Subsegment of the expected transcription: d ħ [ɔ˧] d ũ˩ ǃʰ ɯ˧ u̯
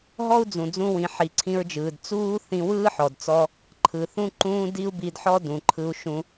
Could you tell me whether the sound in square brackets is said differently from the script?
yes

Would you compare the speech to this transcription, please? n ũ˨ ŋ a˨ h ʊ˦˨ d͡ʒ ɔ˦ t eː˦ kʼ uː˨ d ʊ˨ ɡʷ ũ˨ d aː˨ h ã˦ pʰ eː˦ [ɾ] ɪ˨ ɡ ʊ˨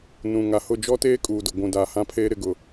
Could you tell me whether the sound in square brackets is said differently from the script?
no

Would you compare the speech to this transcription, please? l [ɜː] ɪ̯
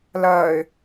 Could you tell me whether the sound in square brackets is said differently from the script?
no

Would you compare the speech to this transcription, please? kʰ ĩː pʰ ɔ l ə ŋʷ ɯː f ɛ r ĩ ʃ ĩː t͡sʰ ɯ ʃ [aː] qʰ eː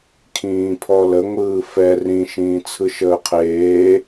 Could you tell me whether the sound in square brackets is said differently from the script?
yes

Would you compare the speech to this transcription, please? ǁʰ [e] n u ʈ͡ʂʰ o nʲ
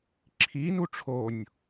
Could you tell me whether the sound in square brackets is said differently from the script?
yes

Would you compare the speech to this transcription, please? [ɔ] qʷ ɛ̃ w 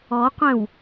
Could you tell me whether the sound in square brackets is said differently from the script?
no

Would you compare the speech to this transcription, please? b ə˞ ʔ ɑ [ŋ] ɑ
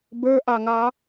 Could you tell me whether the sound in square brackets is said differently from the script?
no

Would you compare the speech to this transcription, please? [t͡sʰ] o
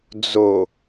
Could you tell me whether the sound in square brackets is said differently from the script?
yes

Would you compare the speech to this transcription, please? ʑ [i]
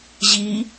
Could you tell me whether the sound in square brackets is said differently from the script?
no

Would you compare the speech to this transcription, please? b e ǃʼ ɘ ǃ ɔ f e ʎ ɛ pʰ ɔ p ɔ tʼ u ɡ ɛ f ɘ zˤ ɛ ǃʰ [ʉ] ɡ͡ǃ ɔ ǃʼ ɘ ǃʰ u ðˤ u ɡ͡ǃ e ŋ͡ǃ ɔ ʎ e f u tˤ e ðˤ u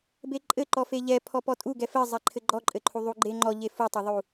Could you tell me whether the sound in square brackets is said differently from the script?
yes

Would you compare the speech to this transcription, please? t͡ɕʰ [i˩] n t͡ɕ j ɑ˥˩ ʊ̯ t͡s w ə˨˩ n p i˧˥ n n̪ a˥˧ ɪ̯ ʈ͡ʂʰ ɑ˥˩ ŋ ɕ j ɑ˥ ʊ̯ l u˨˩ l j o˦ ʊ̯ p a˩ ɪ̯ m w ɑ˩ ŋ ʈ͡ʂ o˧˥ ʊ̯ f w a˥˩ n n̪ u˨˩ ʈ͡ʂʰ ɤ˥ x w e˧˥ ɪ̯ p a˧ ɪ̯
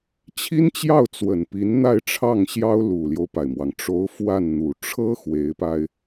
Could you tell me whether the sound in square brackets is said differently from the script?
yes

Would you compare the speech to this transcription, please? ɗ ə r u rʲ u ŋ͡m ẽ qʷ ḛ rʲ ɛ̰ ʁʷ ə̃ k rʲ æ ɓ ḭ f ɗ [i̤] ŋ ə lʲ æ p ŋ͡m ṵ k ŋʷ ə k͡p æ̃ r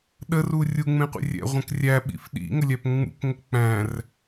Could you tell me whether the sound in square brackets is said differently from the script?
yes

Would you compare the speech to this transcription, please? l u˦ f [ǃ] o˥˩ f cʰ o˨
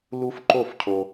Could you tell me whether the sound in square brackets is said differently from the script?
no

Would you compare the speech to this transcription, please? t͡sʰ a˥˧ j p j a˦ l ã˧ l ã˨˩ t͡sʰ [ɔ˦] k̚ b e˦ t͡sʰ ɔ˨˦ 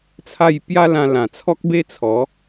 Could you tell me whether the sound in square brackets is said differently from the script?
no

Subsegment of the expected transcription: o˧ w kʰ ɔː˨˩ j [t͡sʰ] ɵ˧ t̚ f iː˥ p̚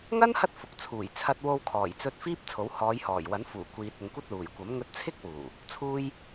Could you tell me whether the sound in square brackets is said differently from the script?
yes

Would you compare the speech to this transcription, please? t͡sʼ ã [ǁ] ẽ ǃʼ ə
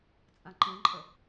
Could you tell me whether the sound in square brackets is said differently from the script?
yes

